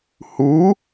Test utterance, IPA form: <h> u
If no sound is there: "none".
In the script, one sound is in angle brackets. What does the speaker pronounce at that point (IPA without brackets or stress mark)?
h